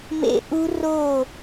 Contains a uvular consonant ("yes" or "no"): no